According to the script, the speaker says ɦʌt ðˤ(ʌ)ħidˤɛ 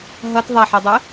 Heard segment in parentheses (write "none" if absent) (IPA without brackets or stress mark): a